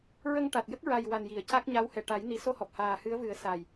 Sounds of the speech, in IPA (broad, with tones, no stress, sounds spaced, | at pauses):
ɹ ə˧ ŋ ʈ a˨˩ t̚ j ə˦˥ k̚ ɹ a˨˩ j w a˨˩ n j i˨˩˨ ə̯ c a˦˥ k̚ ɲ a˧˥ w h ɛ˨˩ ʈ a˨˩˦ j n i˨˩˦ s o˧ h ɔ˨˩ p̚ h aː˨˩ h ɨ˧˥ ə̯ v ɨ˨˩˦ ə̯ s a˨˩ j